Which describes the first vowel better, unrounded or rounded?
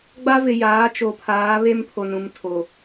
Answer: unrounded